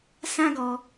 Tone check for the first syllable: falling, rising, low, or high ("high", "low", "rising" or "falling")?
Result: high